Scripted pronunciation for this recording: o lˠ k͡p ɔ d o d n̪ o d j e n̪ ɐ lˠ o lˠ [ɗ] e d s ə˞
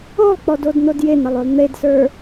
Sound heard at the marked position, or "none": n̪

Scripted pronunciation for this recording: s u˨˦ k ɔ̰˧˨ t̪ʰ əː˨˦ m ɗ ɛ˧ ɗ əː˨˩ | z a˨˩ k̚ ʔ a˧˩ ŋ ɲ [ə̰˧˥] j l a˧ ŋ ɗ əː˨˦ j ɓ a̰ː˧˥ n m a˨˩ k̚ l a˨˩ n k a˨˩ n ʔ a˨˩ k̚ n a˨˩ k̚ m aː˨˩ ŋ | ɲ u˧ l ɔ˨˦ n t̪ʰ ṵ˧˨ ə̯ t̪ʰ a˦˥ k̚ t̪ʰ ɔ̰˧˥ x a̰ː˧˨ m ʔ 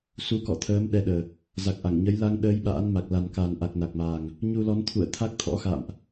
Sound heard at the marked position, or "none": ə˨˦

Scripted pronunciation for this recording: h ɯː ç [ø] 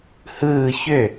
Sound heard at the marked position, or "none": ø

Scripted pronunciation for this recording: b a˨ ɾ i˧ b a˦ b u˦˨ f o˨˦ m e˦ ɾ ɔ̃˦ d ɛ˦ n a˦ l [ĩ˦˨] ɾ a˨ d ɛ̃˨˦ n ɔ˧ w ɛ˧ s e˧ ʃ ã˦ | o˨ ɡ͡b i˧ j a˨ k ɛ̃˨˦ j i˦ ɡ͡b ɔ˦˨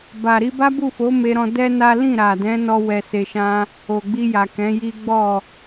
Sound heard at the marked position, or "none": ĩ˦˨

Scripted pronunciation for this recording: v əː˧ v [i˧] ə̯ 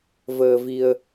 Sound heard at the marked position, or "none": i˧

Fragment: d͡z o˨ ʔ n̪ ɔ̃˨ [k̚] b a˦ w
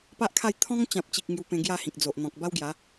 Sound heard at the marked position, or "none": k̚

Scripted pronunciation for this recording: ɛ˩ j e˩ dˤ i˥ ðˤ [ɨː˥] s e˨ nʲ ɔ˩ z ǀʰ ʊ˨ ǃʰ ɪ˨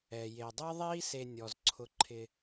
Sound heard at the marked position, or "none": iː˥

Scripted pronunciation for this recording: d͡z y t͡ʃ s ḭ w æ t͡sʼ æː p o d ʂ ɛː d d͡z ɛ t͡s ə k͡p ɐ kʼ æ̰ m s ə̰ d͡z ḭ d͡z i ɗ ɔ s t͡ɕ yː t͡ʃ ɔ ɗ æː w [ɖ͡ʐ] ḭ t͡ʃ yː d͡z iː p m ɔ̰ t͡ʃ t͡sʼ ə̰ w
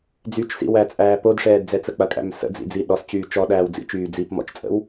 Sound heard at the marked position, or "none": d͡z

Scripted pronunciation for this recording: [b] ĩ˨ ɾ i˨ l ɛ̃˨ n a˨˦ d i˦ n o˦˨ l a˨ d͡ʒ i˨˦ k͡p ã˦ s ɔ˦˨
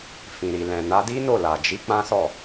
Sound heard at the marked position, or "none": f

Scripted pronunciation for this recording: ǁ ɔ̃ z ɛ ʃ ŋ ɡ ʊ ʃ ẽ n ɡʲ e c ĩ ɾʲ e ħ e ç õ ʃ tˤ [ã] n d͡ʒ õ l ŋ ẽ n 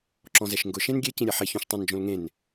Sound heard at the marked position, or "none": ã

